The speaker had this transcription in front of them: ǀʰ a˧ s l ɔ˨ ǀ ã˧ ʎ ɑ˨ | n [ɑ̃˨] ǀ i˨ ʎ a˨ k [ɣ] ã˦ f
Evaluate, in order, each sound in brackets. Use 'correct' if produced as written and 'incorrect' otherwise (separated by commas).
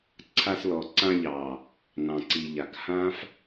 correct, incorrect